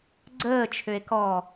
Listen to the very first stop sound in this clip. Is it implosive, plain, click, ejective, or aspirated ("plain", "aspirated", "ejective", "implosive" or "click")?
click